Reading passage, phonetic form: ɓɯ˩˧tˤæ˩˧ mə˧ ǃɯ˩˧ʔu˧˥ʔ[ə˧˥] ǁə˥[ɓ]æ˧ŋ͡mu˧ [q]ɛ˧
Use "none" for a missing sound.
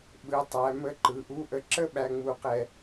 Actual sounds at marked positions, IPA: ə˧˥, ɓ, q

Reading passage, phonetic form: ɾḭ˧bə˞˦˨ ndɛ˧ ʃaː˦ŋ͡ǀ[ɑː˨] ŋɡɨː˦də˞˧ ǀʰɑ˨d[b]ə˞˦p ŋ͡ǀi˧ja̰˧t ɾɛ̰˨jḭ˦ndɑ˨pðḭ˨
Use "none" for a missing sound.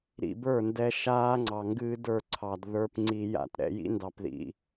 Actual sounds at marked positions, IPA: ɑ˨, ð

